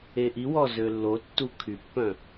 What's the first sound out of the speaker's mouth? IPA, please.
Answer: e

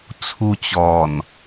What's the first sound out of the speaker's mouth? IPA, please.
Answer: t͡sʰ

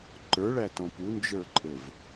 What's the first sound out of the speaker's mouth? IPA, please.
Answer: ǃ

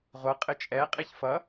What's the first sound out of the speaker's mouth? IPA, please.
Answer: ʁʷ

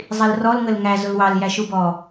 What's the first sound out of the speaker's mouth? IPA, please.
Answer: zˤ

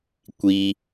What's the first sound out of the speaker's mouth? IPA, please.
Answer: kʷ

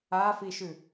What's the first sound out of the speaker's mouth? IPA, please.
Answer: a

